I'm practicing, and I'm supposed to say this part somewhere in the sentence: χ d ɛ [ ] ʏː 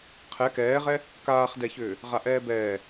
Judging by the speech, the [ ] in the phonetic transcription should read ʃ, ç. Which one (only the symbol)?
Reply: ç